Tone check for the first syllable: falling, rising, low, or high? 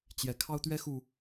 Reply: low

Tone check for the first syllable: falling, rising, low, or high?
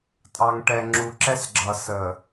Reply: low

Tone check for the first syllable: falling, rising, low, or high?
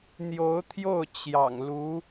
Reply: rising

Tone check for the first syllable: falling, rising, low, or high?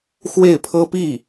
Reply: falling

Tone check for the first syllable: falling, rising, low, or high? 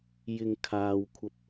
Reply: low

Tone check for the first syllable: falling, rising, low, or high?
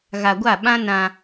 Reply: low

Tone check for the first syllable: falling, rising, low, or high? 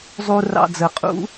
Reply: low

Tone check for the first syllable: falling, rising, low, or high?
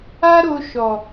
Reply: high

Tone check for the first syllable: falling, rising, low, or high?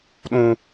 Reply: high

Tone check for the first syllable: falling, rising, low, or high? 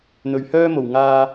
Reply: low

